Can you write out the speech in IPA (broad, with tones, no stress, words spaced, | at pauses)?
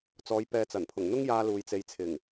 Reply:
t͡sɔː˨˧jpɛː˨t͡sɐ˨˩npʰʊ˨˩ŋ n̪ʊ˥ŋjaː˧ luː˨jt͡se˨jt͡sʰɪ˨˩ŋ